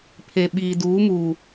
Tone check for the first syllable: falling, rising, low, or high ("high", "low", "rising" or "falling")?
low